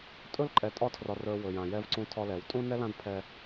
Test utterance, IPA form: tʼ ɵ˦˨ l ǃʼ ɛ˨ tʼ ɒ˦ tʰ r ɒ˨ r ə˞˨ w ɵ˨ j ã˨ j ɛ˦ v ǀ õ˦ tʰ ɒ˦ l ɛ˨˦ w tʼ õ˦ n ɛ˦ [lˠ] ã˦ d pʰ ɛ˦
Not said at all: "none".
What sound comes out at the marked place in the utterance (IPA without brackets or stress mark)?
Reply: l